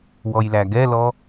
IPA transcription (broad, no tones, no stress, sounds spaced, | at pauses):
w ɔ j l æ ɡ ɛ l ɔ